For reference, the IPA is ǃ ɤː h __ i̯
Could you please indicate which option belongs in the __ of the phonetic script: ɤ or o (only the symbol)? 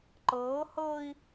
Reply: ɤ